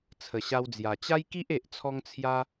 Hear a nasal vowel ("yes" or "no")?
no